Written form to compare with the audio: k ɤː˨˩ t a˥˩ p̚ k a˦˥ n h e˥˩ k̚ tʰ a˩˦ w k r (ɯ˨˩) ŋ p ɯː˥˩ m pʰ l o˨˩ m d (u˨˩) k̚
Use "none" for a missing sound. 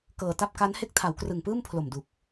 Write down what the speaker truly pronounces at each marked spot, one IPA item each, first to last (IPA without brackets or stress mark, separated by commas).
ɯ˨˩, u˨˩